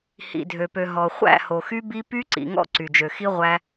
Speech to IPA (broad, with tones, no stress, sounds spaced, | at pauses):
h ḭ˨ dʱ ø˨ p ø˨ ɦ ɔ˨ χʷ æ̰˦˨ h o˨ x y˦ b i˦ p y˦ ǀ ḭ˨ ŋ ɔ̰˦ ǀ y˨ d͡ʒ ø˨ x i˦ ʁʷ æ˦